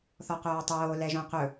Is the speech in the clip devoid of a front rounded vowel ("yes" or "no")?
no